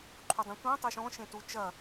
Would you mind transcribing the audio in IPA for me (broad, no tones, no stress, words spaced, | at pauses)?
ǃʰudˤĩtʷĩ tˤeʃɔ̃ ʃẽtu t͡ʃɐ